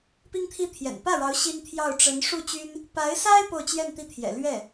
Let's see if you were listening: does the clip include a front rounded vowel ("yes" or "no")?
yes